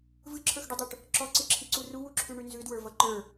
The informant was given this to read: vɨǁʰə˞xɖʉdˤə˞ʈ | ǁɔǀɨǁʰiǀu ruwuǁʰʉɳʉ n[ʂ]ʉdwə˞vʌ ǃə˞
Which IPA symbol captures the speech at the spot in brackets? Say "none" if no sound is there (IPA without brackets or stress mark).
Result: z